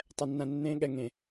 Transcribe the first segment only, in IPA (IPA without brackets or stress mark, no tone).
tˤ